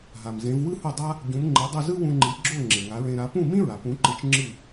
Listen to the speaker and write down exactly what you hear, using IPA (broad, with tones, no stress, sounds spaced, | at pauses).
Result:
ɦ a˩ m z ẽ˩˥ v w ɯ˥ h u˥˩ dˤ a˥ | ɟ ũ˩˥ m ŋ͡ǃ e˩˥ dˤ u˥˩ z ɯ˥ w ũ˧ ŋ͡ǃ i˩˥ ɡ͡ǁ o˥˩ ŋ͡ǁ e˩ ŋ a˩˥ ɹ ẽ˧ ɾ a˩˥ p ũ˥˩ m ĩ˥ ɹ a˩ p ũ˩˥ ǃ ɯ˩˥ t͡ʃ ŋ͡ǁ ɯ˥˩